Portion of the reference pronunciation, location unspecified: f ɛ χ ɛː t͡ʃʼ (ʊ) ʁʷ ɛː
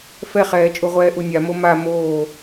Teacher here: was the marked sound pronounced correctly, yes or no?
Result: no